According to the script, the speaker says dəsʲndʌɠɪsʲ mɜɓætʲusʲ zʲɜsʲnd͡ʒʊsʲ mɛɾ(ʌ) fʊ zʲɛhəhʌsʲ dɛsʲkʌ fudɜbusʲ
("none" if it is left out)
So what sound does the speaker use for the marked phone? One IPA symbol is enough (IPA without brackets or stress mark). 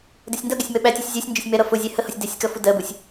ʌ